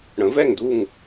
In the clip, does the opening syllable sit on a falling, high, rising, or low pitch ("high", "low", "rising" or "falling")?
rising